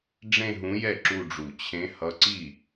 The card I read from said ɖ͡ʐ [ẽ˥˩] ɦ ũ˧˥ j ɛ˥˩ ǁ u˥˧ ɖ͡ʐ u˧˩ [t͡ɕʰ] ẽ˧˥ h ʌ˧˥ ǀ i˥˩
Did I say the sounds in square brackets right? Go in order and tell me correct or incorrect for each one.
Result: incorrect, correct

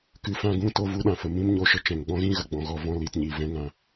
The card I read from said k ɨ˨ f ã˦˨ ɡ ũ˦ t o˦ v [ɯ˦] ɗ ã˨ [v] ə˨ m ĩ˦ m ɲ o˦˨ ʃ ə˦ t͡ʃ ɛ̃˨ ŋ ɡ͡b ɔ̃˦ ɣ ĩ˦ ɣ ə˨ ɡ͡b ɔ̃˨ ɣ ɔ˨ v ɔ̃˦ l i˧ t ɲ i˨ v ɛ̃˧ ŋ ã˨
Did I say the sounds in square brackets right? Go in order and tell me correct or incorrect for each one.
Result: incorrect, incorrect

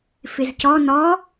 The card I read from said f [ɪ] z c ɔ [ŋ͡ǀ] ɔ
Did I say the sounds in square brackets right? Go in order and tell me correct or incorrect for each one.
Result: correct, incorrect

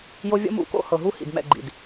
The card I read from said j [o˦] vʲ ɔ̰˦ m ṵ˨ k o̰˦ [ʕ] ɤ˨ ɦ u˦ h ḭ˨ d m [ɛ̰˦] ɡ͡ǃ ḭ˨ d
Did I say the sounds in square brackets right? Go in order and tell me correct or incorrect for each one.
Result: correct, incorrect, incorrect

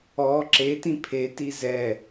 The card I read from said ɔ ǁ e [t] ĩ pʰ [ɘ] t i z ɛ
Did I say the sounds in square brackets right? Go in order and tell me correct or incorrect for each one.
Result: correct, incorrect

